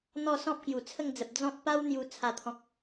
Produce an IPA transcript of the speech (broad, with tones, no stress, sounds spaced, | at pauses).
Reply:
n̪ ɔ˥˧ s ɔ̃˦ p̚ k j u˨˩ t͡sʰ ə˥˧ ŋ d͡z ə˨ p̚ d͡z ɔ̃˦ t̚ p a˦ w n̪ j u˧ t͡sʰ a˥˧ t̪ʰ ɔ̃˦ k̚